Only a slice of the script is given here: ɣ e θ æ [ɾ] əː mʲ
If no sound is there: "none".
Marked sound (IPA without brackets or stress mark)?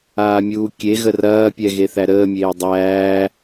ɾ